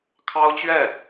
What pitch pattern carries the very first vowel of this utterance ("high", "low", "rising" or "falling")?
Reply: high